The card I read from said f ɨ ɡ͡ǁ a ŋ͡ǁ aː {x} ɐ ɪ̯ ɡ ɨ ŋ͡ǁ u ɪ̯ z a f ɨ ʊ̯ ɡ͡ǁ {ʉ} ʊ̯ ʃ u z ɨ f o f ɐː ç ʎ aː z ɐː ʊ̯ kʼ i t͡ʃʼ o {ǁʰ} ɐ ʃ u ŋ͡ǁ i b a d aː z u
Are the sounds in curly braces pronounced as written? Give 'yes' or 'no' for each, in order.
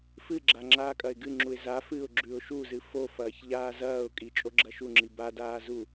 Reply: no, yes, no

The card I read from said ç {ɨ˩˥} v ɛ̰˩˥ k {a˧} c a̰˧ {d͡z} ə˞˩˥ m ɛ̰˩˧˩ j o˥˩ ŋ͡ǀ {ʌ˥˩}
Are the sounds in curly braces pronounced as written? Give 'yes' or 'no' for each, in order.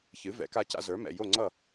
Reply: yes, yes, no, yes

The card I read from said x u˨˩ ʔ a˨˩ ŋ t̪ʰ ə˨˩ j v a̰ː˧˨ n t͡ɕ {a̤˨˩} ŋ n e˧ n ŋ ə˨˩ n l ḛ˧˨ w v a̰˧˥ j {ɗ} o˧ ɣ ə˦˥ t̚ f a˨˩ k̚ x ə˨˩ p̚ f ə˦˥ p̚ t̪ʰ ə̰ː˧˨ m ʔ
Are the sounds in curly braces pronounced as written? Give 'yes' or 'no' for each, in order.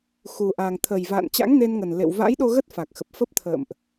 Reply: no, yes

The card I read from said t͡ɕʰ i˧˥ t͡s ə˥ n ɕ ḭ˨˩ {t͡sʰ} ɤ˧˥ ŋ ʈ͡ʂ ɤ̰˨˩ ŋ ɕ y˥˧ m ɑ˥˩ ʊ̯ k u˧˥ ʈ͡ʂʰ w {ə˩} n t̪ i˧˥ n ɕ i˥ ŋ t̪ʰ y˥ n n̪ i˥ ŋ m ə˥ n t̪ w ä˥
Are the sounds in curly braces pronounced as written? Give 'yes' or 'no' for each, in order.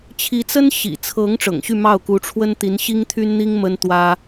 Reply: yes, no

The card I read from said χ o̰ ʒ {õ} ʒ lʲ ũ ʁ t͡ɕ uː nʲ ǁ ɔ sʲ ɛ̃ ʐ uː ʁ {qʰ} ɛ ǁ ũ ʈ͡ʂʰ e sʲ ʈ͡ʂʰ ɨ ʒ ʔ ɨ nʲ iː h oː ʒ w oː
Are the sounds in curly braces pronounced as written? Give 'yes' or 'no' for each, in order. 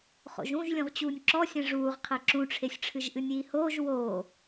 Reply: no, yes

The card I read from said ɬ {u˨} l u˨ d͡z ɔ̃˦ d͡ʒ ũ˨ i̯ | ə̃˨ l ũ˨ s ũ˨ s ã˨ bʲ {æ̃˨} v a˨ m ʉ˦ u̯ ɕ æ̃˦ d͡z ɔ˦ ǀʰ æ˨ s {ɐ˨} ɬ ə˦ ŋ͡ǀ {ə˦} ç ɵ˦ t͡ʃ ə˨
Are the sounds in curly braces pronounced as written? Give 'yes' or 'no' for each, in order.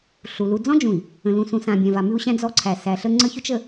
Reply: yes, yes, no, yes

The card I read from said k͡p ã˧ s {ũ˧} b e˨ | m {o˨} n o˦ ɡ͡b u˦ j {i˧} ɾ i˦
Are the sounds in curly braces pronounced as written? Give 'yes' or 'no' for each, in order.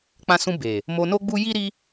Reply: yes, no, no

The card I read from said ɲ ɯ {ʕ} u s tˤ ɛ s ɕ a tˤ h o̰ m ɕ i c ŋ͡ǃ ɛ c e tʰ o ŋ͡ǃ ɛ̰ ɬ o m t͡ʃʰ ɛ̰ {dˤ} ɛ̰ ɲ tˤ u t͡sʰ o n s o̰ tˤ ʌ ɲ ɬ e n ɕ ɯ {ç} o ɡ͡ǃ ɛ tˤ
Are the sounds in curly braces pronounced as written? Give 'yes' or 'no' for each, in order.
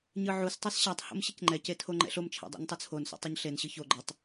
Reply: yes, yes, yes

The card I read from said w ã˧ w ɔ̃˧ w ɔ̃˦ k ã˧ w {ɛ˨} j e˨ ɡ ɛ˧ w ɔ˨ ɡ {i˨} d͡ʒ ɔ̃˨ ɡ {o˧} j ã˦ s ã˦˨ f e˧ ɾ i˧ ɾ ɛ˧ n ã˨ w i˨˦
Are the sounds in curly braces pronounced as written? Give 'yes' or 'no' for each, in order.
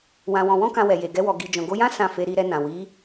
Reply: yes, yes, yes

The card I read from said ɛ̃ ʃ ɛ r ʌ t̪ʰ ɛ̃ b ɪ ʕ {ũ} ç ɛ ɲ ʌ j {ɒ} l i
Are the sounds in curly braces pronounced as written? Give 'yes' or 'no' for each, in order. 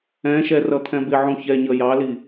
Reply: yes, no

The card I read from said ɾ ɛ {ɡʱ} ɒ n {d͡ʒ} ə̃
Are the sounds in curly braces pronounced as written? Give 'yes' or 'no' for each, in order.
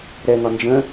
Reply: no, yes

